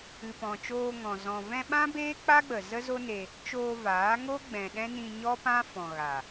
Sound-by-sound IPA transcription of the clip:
ɨ˨pɔ̃˨t͡ʃoː˧ŋɔ̃˨ zɔ̃˨vɛ̃˧ɓã˦ beː˦k͡pa˦ɡ͡bə˨ zə˦zo˦ne˧ | t͡ʃoː˧vaː˨˦ŋo˦ ɡ͡bɛ̃˨ɗɛ̃˦nĩ˧ ɲɔ˦pã˦ fɔ̃˨ ɣa˨

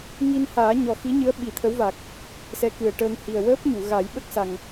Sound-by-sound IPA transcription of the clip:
ŋi˧nhaː˨˩˦ ɲɔ˨˩xi˧˥ɲɨ˧˥ə̯ ɓi˨˩˦t̪ʰə˧˥wva˨˩k̚ | sɛ˧˥kɨ˨˩ə̯ʈəː˧ŋ hi˨˩ə̯wəː˦˥p̚ɲu˨˩˨ ɣa˨˩˦jɓə˦˥k̚sa˨˩ŋ

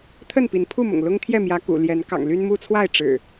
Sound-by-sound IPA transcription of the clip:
t̪ʰə˥˨npi˨˦npʰu˥˨mʊ̰˨˩ŋ lʊ˦ŋt̪ʰjɛ˥˨mjä˨˦ kṵ˨˩ljɛ˨˦n kɑ̰˨˩ŋly˦nmu˦t͡sʰwa˥˨ɪ̯ ʈ͡ʂɻ̩˨˩

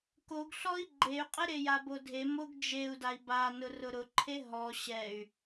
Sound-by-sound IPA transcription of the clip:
koɡɬɔi̯ ɡ͡ǃey̯qʼɪ ɾejabodʱe moɡd͡ʒeu̯dai̯ ba nʊrʊɾʊǃʰe ɦɔ ɕɛy̯

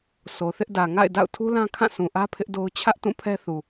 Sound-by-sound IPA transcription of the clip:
sʰo˨θɪ˦ʔdä˨ ŋa̰˦˨ɪ̯ da̰˦˨ʊ̯tʰu˦lã˦kʰã˦˨ sũ˨ʔä˦ pʰɪ˦ʔdo˦ʊ̯ t͡ɕʰä˦ʔ tũ˦˨pʰɛ˦θu˨

